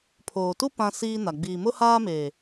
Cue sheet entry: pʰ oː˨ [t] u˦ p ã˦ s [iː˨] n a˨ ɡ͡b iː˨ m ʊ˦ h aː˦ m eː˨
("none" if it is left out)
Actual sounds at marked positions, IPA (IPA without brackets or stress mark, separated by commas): t, iː˦